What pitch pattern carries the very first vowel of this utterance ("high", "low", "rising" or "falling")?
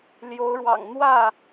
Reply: rising